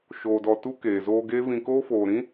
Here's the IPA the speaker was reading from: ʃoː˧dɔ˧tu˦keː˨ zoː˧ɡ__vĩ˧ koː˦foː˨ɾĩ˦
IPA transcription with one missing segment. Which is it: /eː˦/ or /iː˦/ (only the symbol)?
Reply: eː˦